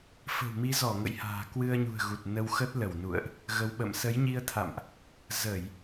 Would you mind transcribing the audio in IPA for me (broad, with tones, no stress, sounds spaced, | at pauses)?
f ə̤˨˩ w m i˨˦ z ɔ˧˩ ŋ ə̰˧˨ j h a̤ː˨˩ k w ɨ˧ ə̯ ɲ ṳ˨˩ ə̯ ɣ u˨˩ t̚ n ə˧ w x ə˦˥ t̚ l ə˧˩ w n ṵ˧˨ ə̯ ʔ | ɣ ə˨˦ w ɓ ə̰˧˨ m s ə˨˦ j ɲ i˧ ə̯ t̪ʰ a̰˧˨ m ʔ | z ə˧˩˨ j